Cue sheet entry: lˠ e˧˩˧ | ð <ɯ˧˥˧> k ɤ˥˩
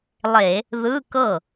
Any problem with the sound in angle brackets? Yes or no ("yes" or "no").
no